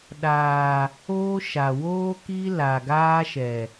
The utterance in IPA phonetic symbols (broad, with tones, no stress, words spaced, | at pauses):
ɗaː˨ | oː˦ʃa˨ woː˦ki˦ la˨ɡaː˦ʃɛ˨